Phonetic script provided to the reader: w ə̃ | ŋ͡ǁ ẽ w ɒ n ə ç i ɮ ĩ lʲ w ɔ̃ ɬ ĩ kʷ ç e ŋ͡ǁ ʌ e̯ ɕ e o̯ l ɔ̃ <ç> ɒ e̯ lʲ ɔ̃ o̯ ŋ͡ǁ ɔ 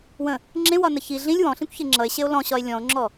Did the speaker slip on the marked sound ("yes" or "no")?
yes